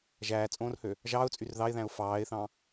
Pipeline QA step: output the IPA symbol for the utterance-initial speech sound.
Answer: ʒ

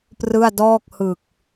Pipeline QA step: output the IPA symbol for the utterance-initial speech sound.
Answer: p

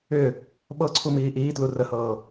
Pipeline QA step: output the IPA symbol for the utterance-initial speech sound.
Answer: ʏ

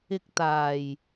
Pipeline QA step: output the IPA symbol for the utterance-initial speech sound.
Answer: ɪ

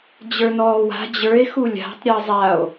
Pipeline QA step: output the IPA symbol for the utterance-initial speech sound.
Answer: d͡ʑ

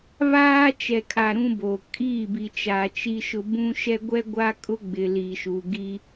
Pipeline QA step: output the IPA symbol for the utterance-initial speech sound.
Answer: β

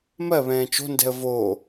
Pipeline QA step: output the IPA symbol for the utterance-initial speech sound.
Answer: m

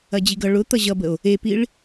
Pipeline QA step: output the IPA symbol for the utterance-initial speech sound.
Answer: ɐ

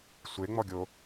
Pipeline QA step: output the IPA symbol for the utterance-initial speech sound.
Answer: sʷ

